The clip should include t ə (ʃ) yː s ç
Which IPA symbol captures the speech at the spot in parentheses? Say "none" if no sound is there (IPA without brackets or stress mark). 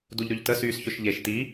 s